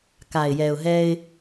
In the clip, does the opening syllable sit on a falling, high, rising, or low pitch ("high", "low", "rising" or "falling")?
low